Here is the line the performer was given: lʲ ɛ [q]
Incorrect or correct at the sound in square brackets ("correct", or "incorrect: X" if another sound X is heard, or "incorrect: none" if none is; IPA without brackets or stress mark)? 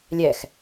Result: incorrect: x